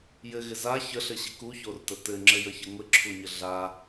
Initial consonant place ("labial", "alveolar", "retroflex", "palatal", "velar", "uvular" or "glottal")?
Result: palatal